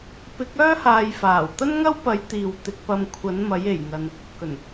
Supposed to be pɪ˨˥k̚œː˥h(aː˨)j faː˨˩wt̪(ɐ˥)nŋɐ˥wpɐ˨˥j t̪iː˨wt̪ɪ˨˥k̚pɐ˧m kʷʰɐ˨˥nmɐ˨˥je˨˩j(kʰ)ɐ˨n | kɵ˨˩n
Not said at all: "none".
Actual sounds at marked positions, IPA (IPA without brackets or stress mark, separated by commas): aː˨, ɐ˥, ŋ